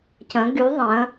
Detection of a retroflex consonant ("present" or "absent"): absent